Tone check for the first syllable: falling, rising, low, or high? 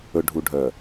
low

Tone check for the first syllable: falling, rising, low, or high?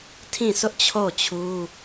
falling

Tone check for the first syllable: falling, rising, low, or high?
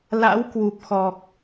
rising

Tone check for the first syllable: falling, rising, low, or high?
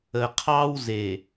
low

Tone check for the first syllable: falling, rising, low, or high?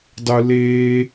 high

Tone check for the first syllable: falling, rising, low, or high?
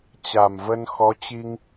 low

